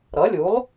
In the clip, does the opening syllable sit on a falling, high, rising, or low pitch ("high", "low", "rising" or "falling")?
rising